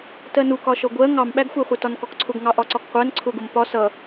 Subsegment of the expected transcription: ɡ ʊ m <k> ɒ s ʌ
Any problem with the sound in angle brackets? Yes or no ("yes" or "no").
yes